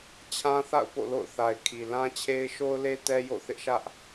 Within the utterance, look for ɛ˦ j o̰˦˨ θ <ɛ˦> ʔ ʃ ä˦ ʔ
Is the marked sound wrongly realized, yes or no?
yes